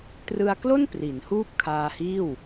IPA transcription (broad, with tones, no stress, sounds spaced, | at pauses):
t r ɯ˧ a̯ k l o˥˩ n p r i˩˦ n h uː˥˩ p̚ kʰ aː˧ h iː˥˩ w